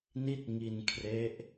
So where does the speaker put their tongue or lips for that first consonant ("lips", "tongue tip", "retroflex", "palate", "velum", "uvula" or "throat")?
tongue tip